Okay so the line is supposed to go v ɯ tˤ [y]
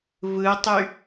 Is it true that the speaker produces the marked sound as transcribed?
yes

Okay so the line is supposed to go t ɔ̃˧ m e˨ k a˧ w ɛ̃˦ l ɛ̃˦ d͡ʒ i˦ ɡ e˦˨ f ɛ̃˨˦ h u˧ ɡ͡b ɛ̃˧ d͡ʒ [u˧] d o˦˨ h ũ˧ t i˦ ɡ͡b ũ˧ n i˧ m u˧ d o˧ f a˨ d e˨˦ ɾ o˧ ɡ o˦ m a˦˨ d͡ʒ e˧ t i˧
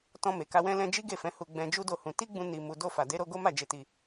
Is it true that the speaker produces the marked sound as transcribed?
no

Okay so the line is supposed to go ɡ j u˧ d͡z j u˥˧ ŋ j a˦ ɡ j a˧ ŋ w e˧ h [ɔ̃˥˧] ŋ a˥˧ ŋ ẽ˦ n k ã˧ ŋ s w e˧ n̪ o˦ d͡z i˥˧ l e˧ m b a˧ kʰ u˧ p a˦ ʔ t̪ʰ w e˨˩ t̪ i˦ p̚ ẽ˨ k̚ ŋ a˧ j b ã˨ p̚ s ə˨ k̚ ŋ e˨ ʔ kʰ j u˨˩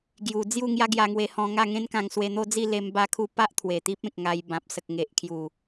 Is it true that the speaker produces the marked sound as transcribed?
no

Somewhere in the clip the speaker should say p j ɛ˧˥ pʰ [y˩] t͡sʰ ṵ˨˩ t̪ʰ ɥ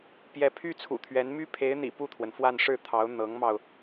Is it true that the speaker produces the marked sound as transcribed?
no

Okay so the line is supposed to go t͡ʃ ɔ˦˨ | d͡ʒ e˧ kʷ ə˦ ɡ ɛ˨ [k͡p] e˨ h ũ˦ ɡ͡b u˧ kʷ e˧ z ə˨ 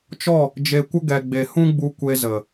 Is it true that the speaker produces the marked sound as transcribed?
no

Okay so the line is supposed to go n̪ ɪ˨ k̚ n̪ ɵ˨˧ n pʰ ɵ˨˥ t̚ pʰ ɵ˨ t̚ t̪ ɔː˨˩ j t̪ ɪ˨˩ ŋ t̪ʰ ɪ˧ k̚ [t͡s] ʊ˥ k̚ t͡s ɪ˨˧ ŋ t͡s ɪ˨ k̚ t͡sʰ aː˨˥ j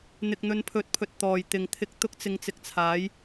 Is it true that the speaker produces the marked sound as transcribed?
no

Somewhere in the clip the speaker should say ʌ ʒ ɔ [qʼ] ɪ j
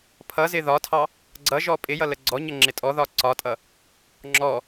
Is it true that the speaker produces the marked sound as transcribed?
no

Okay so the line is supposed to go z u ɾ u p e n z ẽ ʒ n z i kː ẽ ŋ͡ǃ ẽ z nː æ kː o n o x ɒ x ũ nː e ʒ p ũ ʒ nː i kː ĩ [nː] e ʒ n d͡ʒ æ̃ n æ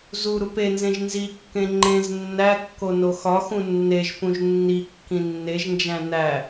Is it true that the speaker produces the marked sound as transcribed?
yes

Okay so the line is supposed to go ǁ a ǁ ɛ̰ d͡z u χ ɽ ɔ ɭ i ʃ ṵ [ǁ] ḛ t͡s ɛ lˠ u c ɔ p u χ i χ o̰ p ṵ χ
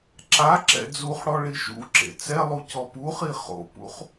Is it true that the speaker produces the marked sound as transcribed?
yes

